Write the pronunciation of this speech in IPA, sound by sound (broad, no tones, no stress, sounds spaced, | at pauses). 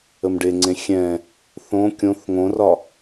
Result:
ə m ɖ e ŋ͡ǀ ẽ xʲ ɛ̃ | θ õ kʲ õ θ ŋ õ r ɒ